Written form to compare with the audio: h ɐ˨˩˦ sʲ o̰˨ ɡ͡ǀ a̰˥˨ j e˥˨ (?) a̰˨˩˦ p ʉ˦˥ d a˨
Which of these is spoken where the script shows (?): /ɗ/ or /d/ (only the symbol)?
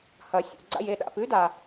ɗ